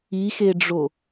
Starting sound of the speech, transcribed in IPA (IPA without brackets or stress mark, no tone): i